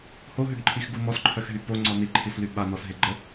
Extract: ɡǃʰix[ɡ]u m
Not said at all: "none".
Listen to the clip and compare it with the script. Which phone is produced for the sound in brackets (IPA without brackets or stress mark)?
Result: ɡ